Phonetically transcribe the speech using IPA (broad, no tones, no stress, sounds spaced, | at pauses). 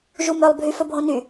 ʒ u m œ lˠ bʱ y f ɵ bʱ õ n y